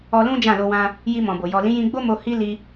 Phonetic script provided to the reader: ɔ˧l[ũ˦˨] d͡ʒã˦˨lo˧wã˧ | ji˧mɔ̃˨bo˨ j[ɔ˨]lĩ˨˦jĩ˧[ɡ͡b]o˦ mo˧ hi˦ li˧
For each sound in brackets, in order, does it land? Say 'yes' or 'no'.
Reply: no, yes, yes

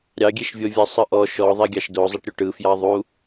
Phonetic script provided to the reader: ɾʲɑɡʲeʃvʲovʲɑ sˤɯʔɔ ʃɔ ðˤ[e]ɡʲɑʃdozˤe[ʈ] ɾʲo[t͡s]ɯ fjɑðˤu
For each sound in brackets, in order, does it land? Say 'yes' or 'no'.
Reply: yes, yes, no

